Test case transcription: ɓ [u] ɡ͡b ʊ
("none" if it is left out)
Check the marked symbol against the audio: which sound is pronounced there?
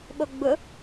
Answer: o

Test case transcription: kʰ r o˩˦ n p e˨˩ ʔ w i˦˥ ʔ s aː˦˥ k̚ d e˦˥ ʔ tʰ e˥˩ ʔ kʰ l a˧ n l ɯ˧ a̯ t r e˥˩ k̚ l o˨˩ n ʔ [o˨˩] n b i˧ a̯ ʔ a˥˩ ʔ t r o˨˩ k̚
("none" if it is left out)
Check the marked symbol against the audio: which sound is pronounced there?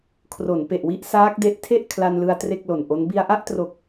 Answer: o˦˥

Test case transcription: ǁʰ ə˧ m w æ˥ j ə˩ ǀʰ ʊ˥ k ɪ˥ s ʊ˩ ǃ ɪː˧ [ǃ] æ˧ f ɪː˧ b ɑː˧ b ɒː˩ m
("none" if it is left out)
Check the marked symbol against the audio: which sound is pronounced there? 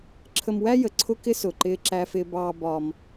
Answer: ǁ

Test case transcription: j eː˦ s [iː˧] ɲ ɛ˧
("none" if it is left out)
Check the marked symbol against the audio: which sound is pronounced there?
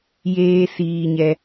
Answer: iː˧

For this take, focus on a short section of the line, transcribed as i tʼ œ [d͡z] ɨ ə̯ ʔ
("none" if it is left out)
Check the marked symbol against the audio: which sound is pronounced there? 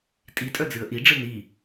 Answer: d͡z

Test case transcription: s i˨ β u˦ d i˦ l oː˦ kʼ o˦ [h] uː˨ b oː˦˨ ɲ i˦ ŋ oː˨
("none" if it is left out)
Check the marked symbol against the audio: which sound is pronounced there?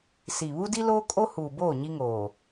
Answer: h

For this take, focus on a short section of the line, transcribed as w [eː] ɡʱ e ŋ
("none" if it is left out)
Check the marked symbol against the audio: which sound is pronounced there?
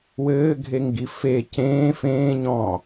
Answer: ɘː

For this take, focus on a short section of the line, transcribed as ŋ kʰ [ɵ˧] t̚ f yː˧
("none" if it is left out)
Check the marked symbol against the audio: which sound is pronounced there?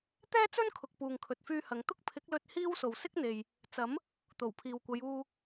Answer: ɵ˨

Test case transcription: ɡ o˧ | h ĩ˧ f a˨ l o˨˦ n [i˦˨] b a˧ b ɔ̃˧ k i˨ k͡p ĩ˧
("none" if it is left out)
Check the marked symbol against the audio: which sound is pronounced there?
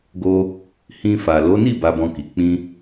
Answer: i˦˨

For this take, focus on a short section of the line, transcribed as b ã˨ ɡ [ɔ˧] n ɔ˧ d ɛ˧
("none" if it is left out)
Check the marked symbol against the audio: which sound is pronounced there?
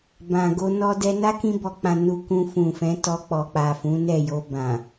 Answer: o˧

